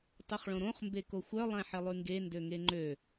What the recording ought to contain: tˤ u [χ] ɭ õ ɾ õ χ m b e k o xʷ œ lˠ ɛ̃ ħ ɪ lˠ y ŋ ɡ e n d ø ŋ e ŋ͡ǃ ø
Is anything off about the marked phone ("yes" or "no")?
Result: no